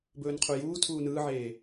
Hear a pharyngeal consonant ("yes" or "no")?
yes